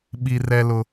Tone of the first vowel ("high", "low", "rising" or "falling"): low